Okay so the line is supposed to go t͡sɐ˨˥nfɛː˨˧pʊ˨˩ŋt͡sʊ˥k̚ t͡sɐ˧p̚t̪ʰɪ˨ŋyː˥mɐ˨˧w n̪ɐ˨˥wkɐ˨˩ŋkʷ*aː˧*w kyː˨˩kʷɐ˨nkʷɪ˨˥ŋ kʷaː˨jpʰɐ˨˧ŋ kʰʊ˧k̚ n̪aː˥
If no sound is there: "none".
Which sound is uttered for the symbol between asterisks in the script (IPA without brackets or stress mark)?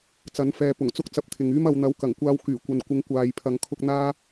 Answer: aː˧